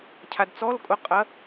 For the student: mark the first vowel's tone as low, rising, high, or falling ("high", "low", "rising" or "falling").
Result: low